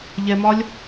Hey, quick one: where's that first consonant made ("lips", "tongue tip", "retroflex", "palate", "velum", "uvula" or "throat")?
palate